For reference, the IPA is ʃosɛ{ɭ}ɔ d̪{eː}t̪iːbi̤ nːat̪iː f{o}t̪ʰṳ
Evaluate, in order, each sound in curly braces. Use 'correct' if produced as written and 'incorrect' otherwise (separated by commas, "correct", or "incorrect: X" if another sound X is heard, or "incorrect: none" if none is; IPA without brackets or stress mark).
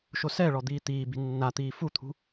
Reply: correct, incorrect: iː, incorrect: u